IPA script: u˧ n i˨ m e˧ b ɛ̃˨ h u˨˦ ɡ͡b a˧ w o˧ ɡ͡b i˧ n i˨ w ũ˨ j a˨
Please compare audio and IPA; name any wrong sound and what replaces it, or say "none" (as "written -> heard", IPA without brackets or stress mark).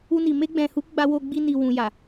b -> ɡ͡b